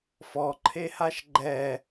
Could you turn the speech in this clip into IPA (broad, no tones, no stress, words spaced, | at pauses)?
fɔǃʰehaʃ ɡ͡ǃɛ